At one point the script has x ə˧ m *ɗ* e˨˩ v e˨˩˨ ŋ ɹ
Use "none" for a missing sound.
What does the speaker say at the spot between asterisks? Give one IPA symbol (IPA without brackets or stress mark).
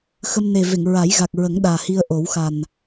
n